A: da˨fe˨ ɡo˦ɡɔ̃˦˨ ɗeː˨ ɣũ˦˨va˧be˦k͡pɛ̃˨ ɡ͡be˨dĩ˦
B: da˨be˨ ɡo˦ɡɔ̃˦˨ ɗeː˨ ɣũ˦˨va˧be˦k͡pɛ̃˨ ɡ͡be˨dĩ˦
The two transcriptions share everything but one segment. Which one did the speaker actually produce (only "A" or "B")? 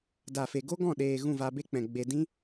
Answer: A